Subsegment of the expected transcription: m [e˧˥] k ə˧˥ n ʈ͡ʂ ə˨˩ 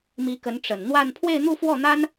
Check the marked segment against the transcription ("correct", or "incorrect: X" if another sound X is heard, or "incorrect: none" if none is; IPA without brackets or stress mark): incorrect: i˧˥